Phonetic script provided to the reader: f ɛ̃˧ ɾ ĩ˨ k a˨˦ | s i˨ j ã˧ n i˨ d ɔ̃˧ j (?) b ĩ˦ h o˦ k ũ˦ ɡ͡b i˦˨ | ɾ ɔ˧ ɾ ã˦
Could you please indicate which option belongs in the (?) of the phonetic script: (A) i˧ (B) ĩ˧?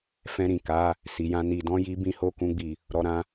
A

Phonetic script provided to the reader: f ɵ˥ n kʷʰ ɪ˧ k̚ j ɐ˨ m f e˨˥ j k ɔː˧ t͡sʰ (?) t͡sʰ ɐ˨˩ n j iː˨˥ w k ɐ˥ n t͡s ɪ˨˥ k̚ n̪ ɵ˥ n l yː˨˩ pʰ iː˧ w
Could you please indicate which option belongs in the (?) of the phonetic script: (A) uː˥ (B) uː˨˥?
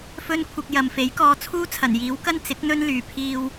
A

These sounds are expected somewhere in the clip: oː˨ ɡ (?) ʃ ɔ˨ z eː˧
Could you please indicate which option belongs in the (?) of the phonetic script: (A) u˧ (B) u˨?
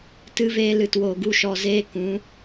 A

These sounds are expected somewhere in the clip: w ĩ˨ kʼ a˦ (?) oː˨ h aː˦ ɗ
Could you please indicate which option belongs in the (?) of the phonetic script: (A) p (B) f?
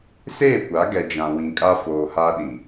B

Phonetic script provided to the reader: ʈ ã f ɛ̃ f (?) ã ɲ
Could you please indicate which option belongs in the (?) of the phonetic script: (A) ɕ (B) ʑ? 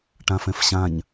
A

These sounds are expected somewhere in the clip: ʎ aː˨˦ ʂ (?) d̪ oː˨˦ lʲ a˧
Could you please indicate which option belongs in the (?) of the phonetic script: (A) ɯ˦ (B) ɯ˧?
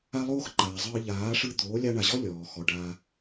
B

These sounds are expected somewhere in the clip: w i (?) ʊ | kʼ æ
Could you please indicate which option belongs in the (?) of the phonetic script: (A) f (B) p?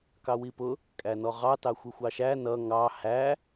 B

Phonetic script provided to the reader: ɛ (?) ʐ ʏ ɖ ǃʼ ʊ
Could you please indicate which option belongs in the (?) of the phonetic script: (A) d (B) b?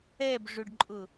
B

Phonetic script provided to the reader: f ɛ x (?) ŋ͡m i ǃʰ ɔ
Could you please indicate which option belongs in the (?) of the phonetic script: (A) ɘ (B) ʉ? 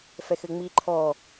A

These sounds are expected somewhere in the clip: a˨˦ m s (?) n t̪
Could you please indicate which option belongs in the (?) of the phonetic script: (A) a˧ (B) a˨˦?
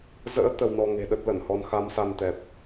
A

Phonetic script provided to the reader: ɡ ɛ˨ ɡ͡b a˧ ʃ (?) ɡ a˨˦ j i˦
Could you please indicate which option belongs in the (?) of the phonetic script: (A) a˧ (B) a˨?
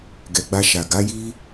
B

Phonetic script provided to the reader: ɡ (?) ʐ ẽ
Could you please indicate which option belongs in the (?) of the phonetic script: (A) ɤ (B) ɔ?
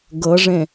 A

